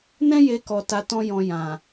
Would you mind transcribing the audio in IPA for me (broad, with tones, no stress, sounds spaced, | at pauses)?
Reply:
n ɛ̃˦ j e˧ k ɔ˧ t a˧ t ɔ̃˦ j ɔ̃˧ j ã˨